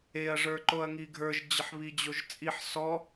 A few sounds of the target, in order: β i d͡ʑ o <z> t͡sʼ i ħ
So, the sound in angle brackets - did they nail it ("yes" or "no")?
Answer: no